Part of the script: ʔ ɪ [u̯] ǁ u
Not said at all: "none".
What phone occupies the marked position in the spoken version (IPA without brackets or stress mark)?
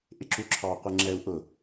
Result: none